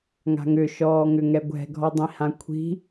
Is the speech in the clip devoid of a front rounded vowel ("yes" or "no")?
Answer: no